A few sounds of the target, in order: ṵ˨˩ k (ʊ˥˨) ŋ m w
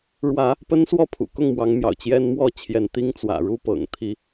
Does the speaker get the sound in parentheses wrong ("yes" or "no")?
no